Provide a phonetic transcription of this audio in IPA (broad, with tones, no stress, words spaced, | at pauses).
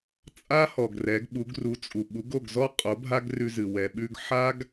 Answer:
t͡sʼa˥hɔ˩ɡ rɛ˩˥ɡɓu˩˥ɡru˩˥t͡sʼu˩ ɓu˩˥ɡo˥˩ɡzɔ˥qʼo˩˥ bʱa˥ɡrʉ˧zɨ˩ wɛ˩ɓʉ˧ɡ ħa˥ɡ